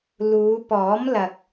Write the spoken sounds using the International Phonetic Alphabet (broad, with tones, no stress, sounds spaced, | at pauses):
l uː˨˧ p ɔː˨˥ m l ɐ˨ k̚